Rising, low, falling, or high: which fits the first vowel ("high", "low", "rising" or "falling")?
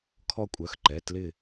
high